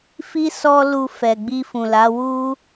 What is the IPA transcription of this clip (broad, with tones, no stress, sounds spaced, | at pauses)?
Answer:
f i˦ s ɔ˦ l u˧ f ɛ˨ ɡ͡b i˧ f ũ˨ l a˨˦ w u˦